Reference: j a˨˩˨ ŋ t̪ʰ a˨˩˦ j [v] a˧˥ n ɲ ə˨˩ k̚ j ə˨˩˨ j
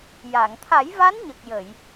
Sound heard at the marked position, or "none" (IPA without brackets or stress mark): v